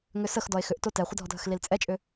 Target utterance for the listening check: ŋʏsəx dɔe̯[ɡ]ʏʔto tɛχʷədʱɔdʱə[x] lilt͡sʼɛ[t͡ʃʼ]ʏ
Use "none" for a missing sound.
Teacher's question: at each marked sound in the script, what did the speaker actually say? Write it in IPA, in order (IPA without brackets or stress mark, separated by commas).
x, x, t͡ʃʼ